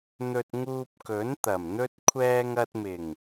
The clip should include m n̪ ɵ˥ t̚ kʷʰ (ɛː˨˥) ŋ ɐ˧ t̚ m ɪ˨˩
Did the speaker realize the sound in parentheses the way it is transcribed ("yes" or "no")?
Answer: no